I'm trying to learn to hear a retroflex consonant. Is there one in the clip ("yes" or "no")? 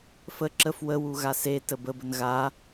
no